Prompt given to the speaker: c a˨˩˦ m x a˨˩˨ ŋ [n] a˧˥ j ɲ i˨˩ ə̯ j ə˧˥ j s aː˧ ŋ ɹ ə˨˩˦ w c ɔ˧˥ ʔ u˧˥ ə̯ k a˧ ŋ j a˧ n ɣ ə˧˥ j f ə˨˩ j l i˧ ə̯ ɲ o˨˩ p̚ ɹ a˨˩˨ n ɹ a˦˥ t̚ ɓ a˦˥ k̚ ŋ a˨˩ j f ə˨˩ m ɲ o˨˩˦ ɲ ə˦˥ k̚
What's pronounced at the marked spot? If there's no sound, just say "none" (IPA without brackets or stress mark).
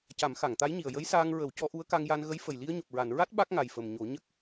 t̪